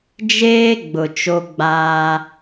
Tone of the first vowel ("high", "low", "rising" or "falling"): high